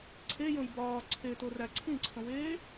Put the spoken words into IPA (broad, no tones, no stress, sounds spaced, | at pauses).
ǀʰ e j õ j b ɒː ǀʰ e t o r æ ǀʰ ĩ ǀʰ õ w eː